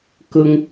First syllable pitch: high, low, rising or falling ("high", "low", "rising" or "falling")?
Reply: high